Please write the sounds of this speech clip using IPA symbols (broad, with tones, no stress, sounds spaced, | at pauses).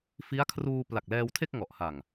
f i˦˥ a̯ kʰ r uː˧ p l a˨˩ k̚ l ɛː˧ w tʰ e˥˩ k̚ ŋ ɔ˨˩ ʔ h a˨˩ ŋ